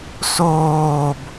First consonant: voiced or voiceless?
voiceless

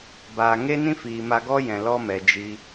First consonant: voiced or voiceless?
voiced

